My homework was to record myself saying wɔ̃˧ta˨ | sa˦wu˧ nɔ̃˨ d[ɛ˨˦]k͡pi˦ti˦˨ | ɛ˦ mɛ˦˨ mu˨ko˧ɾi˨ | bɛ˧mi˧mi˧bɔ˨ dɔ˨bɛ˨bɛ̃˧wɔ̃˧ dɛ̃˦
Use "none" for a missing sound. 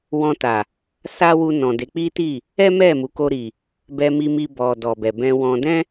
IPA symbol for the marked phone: e˨˦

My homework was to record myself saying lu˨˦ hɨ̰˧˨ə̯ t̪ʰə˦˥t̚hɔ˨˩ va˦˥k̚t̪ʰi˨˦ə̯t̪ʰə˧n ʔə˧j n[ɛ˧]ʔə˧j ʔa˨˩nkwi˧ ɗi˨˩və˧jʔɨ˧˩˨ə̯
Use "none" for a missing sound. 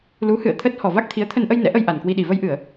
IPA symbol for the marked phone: ɛ̰˧˥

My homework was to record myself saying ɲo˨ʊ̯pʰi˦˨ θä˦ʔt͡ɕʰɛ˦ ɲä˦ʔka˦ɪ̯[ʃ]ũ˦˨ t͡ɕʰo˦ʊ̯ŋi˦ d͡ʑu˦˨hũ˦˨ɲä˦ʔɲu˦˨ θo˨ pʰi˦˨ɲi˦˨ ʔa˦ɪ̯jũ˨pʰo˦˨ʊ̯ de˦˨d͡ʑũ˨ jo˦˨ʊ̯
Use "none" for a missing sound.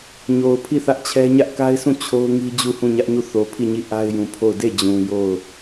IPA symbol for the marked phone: s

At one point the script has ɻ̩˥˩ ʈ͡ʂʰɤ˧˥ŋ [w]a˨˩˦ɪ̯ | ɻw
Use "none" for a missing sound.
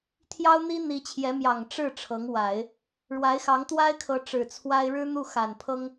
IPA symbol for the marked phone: w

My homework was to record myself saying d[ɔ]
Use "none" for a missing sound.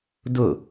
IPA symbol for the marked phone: ʊ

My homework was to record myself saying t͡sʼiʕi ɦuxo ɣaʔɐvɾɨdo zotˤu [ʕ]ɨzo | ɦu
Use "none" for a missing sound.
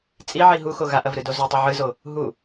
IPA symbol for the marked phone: ʕ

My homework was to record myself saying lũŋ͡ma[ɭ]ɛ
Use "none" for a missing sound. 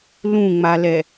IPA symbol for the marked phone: l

